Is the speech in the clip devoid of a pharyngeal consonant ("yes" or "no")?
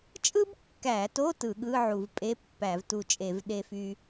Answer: no